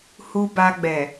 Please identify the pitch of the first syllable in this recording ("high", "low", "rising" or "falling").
low